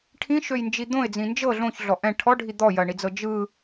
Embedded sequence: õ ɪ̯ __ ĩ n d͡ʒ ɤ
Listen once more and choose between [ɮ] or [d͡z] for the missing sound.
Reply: d͡z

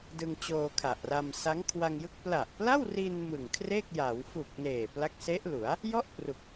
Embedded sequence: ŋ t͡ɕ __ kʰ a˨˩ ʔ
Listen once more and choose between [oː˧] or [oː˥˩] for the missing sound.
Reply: oː˧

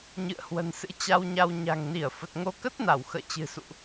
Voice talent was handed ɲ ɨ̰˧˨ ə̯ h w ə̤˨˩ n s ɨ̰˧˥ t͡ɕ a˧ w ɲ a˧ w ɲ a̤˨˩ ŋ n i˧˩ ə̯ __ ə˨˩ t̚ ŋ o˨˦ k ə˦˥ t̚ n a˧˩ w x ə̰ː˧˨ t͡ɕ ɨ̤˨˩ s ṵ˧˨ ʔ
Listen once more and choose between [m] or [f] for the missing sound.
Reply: f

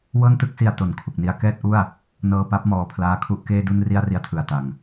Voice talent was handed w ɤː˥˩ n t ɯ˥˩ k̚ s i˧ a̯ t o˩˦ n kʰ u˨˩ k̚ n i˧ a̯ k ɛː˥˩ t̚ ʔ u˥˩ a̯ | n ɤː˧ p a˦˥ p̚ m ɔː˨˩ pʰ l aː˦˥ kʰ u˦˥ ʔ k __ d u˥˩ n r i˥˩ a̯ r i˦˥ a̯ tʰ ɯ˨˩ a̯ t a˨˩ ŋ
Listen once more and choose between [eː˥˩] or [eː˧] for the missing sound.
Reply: eː˥˩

